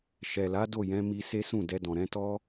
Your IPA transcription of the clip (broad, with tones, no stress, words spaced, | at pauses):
ʃɛ˨la˨˦ do˦˨jɛ̃˨˦ mi˧se˦sũ˦˨ dɛ˧dɔ̃˨ ɾɛ̃˧tɔ˦